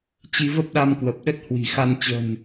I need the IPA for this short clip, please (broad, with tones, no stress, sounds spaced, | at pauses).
t͡ɕ i˧ v ə˦˥ p̚ ɗ a˧ m k w ə˨˩ p̚ ɗ ə˦˥ t̚ h w i̤˨˩ x a˧ n t͡ɕ ə̤˨˩ n